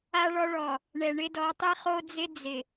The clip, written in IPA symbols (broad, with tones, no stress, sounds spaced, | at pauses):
a˦ ɭ ɔ˦ ɭ ɔ˨ | ɳ ɛ˨ ɳ ɪ˦ d ɔ˨˦ tˤ i˦ χ o˦ d͡z ɪ˦ d͡z ɪ˨